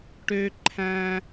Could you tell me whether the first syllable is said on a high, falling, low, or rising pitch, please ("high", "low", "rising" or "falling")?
high